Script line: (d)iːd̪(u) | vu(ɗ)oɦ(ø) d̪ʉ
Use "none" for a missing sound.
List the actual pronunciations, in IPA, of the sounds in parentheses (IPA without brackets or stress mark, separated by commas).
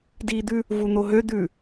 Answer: d, ʉ, n̪, ø